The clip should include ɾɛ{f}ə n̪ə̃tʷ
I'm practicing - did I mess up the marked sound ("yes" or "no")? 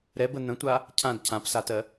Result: yes